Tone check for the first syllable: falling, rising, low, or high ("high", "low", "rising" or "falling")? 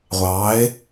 rising